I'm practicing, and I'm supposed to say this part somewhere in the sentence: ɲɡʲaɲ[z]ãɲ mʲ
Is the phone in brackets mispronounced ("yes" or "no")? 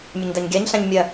yes